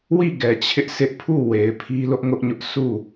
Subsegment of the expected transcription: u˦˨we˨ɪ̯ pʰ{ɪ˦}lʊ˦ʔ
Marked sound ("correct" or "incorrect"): incorrect